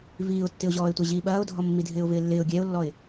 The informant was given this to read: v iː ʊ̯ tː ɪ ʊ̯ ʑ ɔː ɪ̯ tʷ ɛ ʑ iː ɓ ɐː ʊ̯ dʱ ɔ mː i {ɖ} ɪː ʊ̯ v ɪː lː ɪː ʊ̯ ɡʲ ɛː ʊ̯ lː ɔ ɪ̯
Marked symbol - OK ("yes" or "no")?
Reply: no